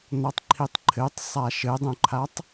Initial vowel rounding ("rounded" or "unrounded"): rounded